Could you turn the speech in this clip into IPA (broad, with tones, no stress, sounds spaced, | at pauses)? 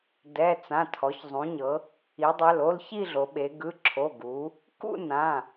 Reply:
d ɛ˩˧˩ t͡s ã˩˧˩ tʰ ɔ˩˧ ç zˤ ũ˩˧ ɲ ɤ˩˧ | i˩˧ dˤ ɛ˩˧˩ l o˥˧ l ç i˥˧ ɮ o˩˧ ɓ e˩˧ ɡ ɯ˩˧˩ ǁʰ o˩˧˩ ɡ u˩˧ | k ṵ˥˧ n ã˩˧˩